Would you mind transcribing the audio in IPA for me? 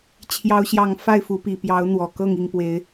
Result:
t͡ɕʰjɑ˦ʊ̯ɕjɑ˥˨ŋ fa˥˨ɪ̯fu˨˦pi˨˩ pjɑ˨˦ʊ̯ n̪wɔ˨˩kɤ˥˨ŋ i˥˨ŋpwe˨˦ɪ̯

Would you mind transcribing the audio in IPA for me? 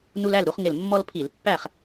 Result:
nu˦læ˥˨l ɾu˦χŋɪ˧˩l mːɔ˦lpʰi˧˩˧l pːæ˥˨χ

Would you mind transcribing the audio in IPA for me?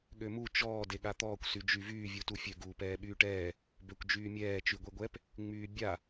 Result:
ɠømu t͡ʃɔː deɠat̪ɔːkʷ syd͡ʒyvyː vʲutufʲø ɡuːpɛːɓyːʈɛː | bøkʷd͡ʒyːmʲɛː t͡ʃyɡʷeɡʷɛp | ŋ͡myːbʲa

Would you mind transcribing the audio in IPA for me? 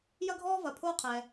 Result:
jɐ˦ɡʱɔː˦vɐ˨ pʰoː˦qʰɛ˨

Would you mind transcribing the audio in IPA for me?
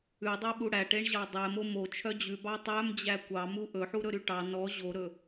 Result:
ʉdˤœɓu ɽæʈeɳʑɑ dˤɛmo mot͡ʃʰœ d͡ʑʉbɑ tˤœmd͡ʑæ kʷɑmu ʔɵħuɾɵɾy ʈɑ nɔ ʑoɾɵ

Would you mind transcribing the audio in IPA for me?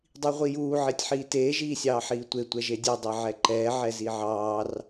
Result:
dˤiʁʷijuː ʕetʲħiːteː ʒiːsʲɑːħiːtʷe tʷɛʒedʲe dˤeʕɛǃɛː ʕɛziʕɑːr

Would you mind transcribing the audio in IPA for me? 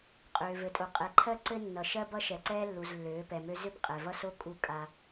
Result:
qʼøː˨vɘ˨tʼo˨ qʼɛ˨ǃʰɜ˦ ǀɘ˦nːʌ˨ ʃɜ˦bʌ˦ ʃɛ˨ǀɛː˦lːu˨z lːøː˨˦pɛ˨mø˦ zø˦pqʼɛ˨vʌ˦so˦ kʼu˦kʼa˦

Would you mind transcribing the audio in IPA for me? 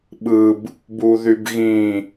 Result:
ɓɯb | buðybɣĩ

